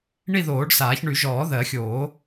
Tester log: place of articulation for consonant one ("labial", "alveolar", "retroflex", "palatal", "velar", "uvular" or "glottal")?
retroflex